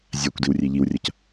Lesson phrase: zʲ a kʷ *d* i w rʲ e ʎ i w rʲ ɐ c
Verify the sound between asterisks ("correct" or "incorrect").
correct